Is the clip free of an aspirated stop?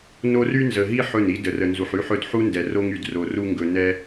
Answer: yes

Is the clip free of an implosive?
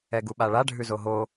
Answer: no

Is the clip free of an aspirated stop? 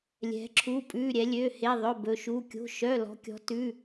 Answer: no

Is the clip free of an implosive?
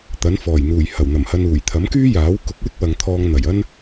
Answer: yes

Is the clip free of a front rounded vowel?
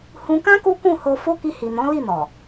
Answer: yes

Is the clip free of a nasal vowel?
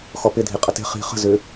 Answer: yes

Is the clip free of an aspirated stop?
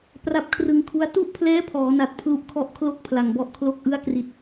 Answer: no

